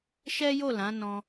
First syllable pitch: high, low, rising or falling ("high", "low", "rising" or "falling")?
high